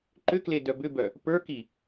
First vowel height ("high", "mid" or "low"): high